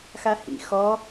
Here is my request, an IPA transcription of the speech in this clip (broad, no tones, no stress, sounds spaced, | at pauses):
x a h ḭ x ɔ